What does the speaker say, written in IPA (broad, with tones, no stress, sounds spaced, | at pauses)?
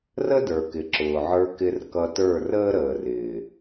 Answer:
r ə˦ d ə˞˨ k ɪ˨ ǁ ʊː˨ ʕ ə˞˧ k ɪ˧ r k ʌ˧ t ə˞˦˨ r əː˦ ɾ əː˨ r ɪː˨